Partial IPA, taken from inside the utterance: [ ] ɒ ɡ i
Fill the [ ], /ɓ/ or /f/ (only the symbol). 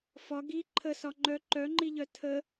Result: f